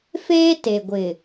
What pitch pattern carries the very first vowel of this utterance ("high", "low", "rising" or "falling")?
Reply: high